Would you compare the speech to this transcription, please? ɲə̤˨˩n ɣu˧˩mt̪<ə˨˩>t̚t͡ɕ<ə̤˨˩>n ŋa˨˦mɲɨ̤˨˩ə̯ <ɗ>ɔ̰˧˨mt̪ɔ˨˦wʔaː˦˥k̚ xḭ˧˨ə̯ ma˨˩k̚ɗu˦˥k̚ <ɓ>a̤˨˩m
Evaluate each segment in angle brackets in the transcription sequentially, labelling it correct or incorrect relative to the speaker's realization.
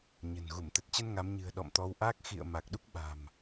correct, incorrect, correct, correct

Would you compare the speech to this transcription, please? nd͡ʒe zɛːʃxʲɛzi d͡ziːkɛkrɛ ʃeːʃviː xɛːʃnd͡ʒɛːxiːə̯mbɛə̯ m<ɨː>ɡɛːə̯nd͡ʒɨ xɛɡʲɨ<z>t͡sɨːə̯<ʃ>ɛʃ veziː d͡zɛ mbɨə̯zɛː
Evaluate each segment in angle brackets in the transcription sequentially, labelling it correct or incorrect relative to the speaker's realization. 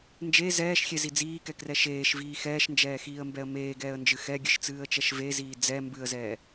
incorrect, incorrect, incorrect

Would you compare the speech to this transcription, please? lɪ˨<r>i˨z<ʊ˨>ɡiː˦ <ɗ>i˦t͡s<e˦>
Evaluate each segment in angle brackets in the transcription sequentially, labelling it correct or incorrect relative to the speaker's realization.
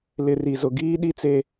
correct, correct, correct, correct

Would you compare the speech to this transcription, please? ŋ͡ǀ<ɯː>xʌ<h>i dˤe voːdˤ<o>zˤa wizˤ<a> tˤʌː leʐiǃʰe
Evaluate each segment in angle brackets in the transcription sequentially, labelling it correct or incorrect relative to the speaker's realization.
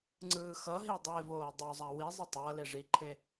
correct, incorrect, correct, incorrect

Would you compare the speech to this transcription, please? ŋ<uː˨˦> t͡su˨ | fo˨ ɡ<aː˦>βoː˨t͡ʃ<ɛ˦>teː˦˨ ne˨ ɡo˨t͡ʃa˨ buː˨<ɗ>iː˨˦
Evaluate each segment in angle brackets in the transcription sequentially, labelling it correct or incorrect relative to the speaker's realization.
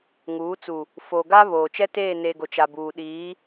correct, incorrect, correct, correct

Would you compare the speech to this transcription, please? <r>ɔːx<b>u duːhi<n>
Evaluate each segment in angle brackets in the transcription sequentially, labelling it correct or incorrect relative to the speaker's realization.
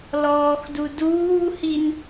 incorrect, incorrect, correct

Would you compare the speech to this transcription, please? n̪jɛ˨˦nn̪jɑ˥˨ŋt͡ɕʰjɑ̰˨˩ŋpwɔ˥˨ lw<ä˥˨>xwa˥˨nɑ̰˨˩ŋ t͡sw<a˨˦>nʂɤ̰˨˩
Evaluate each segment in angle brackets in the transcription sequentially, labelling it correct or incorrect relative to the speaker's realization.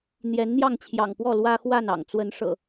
incorrect, incorrect

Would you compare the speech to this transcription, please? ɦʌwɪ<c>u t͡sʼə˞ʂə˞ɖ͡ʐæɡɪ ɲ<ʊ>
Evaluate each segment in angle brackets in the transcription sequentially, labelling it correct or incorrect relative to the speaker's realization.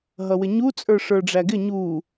incorrect, incorrect

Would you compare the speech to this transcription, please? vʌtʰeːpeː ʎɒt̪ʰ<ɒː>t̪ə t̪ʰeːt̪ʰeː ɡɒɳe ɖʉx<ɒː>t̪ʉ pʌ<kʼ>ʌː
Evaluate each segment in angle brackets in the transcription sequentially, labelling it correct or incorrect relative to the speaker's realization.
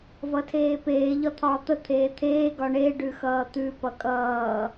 correct, incorrect, correct

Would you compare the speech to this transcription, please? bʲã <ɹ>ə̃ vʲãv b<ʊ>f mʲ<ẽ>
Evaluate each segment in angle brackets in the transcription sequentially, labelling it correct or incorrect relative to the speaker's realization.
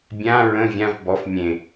correct, incorrect, correct

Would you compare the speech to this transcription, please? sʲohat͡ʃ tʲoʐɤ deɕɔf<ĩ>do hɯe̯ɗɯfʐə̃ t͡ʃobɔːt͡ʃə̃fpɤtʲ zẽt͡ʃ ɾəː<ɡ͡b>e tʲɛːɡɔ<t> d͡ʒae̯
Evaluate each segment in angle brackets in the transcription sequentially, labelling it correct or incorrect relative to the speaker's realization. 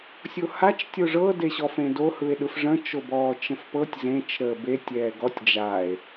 incorrect, incorrect, incorrect

